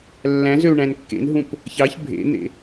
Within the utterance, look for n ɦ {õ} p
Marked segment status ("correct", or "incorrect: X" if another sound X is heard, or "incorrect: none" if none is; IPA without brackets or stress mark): incorrect: ũ